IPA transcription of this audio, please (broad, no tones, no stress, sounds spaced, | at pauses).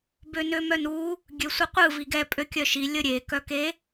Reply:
b ø n ø m œ n u | ɡʲ ø sʷ ɯ qʷ ɯ v i ɡ ɛ pʼ ø kʲ œ ʃ i lʲ ə ɾʲ e k œ k e